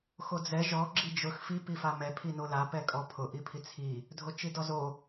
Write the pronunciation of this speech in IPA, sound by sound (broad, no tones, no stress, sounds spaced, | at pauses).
x o d͡z ɛ ʒ ɔ ɡ͡ǁ i d͡ʒ ʊ x f i p i f a m ɛ pʰ i n o l a p ɛ kʼ ɔ pʰ ʊ ʔ i pʰ i t͡sʰ i | dʱ o t͡ʃ i d ɔ z o